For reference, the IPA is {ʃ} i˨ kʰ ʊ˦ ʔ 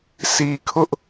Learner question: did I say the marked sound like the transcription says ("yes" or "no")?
no